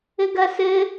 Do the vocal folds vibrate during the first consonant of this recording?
yes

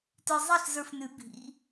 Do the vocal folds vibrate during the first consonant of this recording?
no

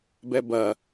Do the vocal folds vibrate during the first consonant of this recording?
yes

